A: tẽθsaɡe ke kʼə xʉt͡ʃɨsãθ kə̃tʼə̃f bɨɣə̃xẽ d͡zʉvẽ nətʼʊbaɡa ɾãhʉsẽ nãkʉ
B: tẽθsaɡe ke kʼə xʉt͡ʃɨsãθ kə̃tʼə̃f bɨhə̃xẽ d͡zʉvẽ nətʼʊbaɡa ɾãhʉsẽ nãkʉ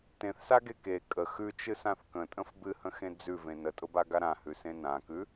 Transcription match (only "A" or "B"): B